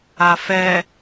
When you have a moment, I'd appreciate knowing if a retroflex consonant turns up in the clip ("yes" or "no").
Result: no